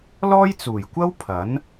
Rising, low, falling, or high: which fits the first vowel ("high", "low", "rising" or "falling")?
high